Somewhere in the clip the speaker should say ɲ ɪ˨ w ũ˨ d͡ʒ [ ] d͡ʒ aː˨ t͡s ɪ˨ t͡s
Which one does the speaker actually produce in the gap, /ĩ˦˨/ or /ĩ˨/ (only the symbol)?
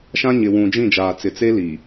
ĩ˦˨